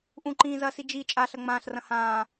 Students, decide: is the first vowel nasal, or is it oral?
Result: nasal